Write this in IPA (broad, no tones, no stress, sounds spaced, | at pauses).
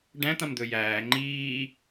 ɖ æ̃ t̪ ã m d̪ ɵ j æː ŋ͡ǃ iː